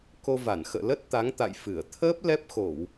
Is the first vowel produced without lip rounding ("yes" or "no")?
no